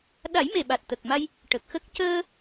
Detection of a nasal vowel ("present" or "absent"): absent